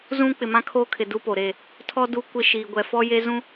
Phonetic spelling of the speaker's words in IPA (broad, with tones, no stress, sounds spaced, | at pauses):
z ũ˦ k͡p ɪ˨ m ã˦ kʰ oː˦ kʰ ɪ˨ d u˦ p o˨ ɾ e˦˨ | tʰ ɔ˦ d u˦ kʷ ɪ˦ ʃ iː˨ ɡʷ ɛ˨ f ɔ˦ j e˦ z ũ˦